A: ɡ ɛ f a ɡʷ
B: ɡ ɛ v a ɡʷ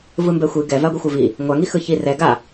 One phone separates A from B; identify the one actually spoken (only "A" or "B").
B